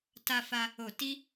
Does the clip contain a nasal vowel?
no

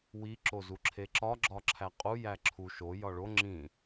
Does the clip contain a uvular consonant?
yes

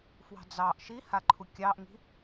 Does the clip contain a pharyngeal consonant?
no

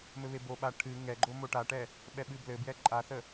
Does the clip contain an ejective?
yes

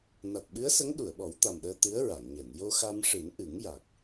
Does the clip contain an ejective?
no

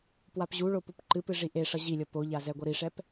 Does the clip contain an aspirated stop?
no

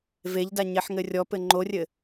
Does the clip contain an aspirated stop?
no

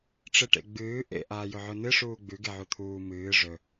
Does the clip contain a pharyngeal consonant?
yes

